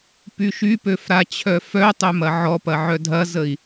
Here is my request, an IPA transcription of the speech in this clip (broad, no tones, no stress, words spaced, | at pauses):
pyʃypøf ɾat͡ɕʰœfœtˤø mɐʕɔpɐ ʕœdʱɐzəi̯